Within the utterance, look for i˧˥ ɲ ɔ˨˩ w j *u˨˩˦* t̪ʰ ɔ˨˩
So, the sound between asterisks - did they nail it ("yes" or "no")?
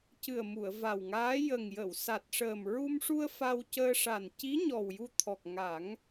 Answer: no